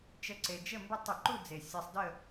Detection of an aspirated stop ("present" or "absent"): absent